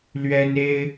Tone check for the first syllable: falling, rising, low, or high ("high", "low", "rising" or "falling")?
high